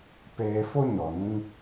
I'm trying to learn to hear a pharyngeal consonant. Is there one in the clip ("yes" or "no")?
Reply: no